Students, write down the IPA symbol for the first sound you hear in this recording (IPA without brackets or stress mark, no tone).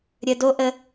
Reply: ɾʲ